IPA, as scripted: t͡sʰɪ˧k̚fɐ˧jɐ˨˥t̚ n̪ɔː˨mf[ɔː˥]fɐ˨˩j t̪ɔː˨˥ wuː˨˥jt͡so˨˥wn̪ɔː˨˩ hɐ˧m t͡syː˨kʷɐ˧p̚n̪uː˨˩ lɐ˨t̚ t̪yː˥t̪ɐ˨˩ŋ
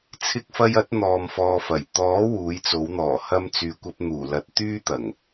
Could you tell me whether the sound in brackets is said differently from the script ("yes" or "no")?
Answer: yes